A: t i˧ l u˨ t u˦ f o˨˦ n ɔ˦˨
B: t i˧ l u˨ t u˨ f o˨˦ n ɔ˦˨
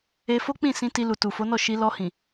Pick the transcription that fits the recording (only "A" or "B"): B